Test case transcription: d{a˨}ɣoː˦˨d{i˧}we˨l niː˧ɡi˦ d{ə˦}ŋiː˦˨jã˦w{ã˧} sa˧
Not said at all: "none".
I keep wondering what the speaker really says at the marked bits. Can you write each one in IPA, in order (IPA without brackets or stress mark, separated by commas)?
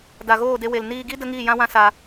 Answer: a˨, e˧, ə˦, ã˦